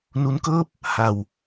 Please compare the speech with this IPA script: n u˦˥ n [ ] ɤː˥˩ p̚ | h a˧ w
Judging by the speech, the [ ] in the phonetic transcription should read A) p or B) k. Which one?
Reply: B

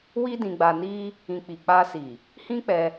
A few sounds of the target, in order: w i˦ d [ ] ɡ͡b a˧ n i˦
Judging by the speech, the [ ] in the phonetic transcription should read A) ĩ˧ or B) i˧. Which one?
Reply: A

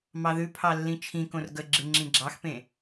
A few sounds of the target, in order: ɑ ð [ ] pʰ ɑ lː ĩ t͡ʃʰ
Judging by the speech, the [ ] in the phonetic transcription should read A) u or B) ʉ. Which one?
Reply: B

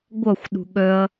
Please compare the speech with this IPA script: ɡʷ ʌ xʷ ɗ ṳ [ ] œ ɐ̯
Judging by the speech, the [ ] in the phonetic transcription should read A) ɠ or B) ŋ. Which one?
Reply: A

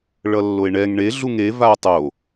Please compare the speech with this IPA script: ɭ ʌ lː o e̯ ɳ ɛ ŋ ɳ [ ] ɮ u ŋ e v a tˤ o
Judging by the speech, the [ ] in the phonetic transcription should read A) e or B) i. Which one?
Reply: A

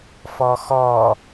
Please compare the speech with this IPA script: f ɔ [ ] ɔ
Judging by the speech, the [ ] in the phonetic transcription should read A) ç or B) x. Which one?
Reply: B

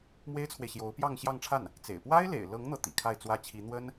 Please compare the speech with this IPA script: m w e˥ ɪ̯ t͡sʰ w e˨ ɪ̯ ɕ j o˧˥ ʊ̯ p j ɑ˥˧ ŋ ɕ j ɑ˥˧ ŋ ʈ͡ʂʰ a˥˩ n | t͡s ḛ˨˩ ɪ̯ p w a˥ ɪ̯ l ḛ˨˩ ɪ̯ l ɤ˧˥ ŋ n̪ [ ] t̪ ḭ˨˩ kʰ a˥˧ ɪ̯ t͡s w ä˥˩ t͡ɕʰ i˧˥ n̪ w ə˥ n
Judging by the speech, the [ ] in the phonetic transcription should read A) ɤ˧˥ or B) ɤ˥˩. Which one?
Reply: B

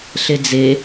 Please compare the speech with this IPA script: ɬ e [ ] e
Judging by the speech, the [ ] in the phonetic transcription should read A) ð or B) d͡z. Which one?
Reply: B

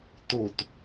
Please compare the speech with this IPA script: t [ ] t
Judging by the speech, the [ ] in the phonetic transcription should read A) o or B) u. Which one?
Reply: A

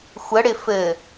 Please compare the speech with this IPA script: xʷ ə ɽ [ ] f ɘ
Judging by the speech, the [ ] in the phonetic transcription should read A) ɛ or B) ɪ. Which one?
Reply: B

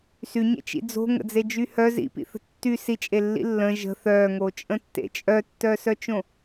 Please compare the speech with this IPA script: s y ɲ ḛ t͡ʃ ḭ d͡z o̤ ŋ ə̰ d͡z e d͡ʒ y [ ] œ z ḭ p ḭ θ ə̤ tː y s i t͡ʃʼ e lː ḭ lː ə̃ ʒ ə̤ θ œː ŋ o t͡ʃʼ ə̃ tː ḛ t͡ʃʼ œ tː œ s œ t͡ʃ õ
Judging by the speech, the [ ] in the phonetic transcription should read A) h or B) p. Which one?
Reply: A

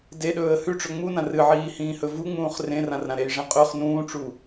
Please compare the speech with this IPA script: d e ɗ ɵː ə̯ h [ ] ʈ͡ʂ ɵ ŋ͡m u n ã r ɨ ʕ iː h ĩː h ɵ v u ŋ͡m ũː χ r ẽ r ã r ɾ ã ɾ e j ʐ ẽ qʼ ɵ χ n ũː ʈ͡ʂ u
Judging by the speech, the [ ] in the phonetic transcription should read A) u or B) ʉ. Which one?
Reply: B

